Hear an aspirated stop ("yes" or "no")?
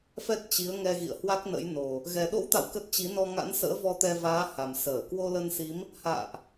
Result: no